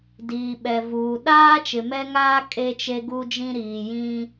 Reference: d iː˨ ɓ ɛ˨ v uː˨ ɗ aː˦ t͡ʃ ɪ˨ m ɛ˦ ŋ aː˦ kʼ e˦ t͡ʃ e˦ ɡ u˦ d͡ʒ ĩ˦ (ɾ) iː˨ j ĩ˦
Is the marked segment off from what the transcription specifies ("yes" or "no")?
no